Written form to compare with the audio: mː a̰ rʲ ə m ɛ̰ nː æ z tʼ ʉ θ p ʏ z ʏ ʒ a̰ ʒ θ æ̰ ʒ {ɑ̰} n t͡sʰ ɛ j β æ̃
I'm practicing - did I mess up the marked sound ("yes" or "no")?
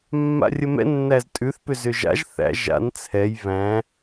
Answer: yes